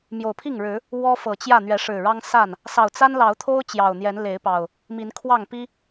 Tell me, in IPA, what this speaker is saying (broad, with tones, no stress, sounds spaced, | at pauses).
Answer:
m j o˨˩ ʊ̯ pʰ i˥˨ ŋ ɻ ɻ̩˨˦ | w ɔ˦ f ɤ˨˩ t͡ɕ j ä˥˨ n̪ ɥ ɛ˨˦ ʂ ɻ̩˨˩ ɻ ɑ˦ ŋ s a˥˨ n | s ɑ˨˩ ʊ̯ t͡s a˦ n l ɑ˨˦ ʊ̯ t̪ʰ o˦ ʊ̯ t͡ɕ j ɑ˨˩ ʊ̯ n̪ j ɛ˨˦ n l e˨˦ ɪ̯ p ɑ˨˩ ʊ̯ | m i˨˦ n kʰ w ɑ˥˨ ŋ p i˦